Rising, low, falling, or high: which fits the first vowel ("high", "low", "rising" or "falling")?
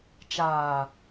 low